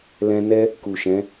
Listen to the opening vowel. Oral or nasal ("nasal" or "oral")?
nasal